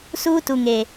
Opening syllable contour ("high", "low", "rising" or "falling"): high